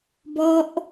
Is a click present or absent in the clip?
absent